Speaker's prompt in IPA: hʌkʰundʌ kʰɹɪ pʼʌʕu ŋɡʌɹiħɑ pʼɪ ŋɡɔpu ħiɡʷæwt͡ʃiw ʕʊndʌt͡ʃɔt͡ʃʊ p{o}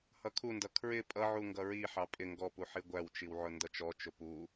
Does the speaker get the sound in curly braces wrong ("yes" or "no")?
yes